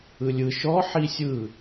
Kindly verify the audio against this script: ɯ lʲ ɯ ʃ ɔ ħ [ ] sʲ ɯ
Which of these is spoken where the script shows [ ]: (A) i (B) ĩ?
A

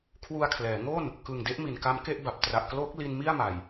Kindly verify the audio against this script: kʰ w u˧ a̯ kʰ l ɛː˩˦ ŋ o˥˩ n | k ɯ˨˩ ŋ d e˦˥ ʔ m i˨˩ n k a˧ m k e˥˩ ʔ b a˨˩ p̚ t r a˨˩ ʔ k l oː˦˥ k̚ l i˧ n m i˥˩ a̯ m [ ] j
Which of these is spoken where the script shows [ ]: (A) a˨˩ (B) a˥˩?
A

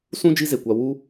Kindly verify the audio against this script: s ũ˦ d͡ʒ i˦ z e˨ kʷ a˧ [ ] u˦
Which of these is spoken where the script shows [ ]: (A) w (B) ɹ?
A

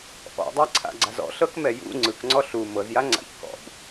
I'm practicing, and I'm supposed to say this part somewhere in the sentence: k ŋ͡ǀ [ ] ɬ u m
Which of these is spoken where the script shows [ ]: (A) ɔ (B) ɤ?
A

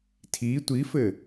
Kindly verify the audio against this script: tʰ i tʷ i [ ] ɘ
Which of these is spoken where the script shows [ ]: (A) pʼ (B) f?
B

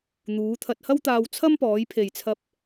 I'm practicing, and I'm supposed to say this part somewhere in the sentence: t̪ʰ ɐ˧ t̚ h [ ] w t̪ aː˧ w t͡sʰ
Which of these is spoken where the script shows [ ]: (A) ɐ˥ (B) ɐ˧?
A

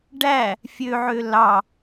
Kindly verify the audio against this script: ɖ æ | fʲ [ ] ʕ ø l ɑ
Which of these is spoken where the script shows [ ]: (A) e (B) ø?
B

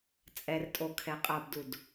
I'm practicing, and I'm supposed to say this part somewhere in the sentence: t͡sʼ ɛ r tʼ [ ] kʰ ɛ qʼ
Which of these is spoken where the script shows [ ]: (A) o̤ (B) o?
B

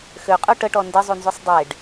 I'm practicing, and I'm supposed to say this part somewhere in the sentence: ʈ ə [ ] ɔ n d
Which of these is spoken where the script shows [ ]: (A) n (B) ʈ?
B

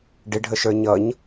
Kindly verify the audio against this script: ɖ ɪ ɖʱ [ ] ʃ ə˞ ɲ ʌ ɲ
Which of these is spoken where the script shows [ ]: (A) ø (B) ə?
B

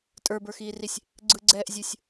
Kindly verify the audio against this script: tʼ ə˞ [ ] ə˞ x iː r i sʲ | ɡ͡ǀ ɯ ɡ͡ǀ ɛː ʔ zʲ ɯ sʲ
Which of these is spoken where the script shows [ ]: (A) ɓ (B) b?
B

